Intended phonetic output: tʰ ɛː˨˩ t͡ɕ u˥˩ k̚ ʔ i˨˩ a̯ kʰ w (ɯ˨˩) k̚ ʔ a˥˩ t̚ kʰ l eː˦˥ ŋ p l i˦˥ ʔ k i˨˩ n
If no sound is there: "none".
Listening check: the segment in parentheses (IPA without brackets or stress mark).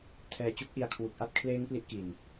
u˨˩